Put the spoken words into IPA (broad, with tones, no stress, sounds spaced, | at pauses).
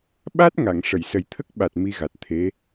ɓ a˦˥ t̚ ŋ a˨˩˨ ŋ ʂ ə˨˩˨ j s ə˨˩ j t̪ʰ ə˦˥ k̚ ɓ a˨˩ t̚ m i˧ ɣ a˨˩ t̚ t̪ʰ e˧˥